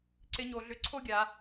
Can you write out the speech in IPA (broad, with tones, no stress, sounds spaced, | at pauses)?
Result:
ǀ ɪ˧˥ ɲ o˩˧ ɮ ʏ˧˥ ǀʰ o˥ ɡʲ a˩˧